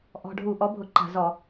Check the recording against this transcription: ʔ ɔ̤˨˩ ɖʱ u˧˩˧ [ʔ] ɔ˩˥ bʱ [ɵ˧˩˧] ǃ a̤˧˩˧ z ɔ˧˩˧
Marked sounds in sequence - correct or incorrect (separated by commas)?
correct, incorrect